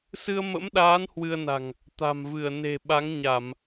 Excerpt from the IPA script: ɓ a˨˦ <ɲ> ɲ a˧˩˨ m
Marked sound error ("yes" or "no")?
yes